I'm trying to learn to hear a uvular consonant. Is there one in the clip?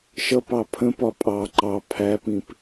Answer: no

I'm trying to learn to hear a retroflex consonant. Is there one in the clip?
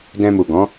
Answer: no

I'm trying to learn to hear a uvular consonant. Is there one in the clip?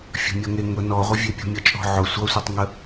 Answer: yes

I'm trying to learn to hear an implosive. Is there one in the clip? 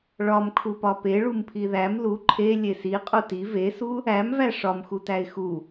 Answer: no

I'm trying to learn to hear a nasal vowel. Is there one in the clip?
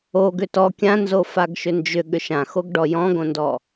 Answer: yes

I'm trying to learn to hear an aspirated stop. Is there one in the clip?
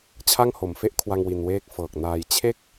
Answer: yes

